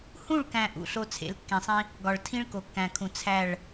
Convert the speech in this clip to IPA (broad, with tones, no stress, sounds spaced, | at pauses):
h ũ˦˨ ɭ k æ̃˨ ʔ ṵ˨ ɬ o˦ t͡sʰ ḛ˨˦ l kː ẽ˨ sˤ ĩ˦ | ɡ ɒ˨ ɭ tʰ ĩ˦ ɭ k o˨ kː æ̃˨ kʰ ũ˨ t͡sʰ æ˦˨ ɭ